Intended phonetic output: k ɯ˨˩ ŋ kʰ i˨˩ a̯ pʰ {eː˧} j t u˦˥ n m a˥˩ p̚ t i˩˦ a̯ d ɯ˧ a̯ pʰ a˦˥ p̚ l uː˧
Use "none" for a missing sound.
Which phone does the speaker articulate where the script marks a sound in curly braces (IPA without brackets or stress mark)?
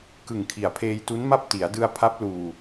eː˧